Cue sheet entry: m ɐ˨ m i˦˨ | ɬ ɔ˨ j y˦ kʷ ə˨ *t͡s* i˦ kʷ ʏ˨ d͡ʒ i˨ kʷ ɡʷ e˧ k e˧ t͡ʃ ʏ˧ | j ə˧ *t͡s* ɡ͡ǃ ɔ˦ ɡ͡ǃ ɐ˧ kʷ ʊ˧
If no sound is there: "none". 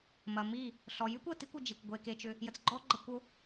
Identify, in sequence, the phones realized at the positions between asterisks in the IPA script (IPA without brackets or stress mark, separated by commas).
t, t͡s